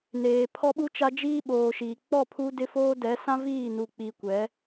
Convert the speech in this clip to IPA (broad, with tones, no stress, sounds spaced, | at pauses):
n eː˨ pʰ ɔ˦ ɓ u˦ t͡ʃ a˦ d͡ʒ iː˦ ɓ oː˨ ʃ iː˨ k͡p ɔ˦˨ pʰ u˦ d ɪ˦ f oː˦ d ɛ˨˦ s ã˦ v iː˦˨ n u˨ k͡p i˨ kʷ ɛ˨˦